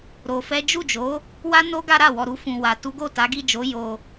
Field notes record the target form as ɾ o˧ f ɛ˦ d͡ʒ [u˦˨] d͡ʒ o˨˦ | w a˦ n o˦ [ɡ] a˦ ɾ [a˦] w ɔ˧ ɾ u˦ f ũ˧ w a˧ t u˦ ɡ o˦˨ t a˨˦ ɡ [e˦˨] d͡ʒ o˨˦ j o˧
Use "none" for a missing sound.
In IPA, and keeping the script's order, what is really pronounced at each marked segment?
u˦˨, ɡ, a˦˨, i˦˨

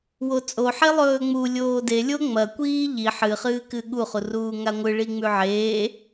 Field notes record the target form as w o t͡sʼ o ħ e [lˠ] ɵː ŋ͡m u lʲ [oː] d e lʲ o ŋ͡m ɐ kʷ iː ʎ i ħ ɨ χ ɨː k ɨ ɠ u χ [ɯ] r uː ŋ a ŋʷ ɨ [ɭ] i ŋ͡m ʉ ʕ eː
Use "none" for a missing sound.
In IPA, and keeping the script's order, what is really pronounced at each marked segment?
lˠ, oː, u, ɭ

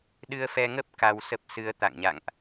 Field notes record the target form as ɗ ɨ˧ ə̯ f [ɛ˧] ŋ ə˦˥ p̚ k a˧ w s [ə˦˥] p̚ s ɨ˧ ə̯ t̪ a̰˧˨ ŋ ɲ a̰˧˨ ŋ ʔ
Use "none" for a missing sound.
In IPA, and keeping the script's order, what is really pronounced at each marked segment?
ɛ˧, ə˦˥

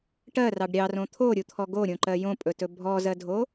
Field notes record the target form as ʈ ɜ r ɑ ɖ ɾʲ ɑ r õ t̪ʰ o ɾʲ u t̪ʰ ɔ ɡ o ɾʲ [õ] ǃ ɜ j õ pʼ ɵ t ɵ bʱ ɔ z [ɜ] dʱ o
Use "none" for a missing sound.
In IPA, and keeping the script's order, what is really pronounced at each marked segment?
õ, ɜ

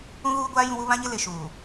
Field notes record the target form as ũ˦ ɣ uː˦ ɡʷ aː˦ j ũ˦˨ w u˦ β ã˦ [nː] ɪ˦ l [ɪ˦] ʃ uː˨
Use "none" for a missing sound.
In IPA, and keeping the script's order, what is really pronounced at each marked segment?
ɲ, ɪ˨

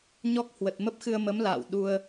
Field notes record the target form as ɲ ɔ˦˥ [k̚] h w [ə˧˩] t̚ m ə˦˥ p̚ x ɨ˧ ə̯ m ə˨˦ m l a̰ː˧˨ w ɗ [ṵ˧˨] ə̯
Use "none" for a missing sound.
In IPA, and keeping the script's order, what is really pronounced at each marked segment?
k̚, ə˨˩, u˧

